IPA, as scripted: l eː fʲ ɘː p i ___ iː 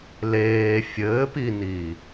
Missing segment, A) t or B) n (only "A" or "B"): B